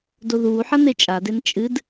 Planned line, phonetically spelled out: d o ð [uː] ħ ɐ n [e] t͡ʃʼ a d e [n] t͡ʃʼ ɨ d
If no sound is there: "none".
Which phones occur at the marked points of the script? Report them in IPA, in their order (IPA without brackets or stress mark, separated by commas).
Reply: uː, e, n